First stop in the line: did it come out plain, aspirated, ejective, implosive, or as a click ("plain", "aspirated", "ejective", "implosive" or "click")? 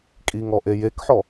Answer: ejective